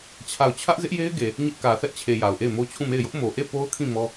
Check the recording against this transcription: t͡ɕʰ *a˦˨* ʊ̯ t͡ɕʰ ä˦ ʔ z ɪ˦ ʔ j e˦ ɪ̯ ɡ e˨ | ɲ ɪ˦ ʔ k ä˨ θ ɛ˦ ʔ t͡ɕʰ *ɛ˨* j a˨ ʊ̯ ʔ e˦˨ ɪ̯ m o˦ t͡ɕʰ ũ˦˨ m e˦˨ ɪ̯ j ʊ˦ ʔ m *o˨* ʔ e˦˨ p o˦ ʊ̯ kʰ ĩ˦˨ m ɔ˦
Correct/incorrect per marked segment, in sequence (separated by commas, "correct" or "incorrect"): correct, incorrect, correct